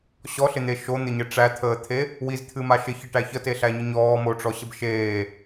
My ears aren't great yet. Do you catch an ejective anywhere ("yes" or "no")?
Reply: no